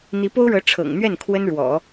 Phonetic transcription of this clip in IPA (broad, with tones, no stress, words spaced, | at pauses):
n̪i˧˥po˥ʊ̯ɻɤ˧˥ ʈ͡ʂʰɤ̰˨˩ŋn̪ɥɛ˥˩n kʰwə˥nɻwɔ̰˨˩˦